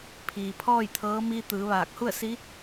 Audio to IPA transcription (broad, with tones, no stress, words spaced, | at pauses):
pʰiː˩pʰɔː˥˨jt̪ʰɤː˧˥ miː˧t̪ɯː˩˧ʋaː˧˩k̚hu˥˨ə̯ si˧˥